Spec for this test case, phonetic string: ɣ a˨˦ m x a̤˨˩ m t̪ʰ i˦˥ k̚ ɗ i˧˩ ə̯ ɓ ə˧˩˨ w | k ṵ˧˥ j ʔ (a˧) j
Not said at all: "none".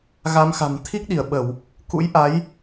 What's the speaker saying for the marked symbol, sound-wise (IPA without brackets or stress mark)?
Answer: a˨˦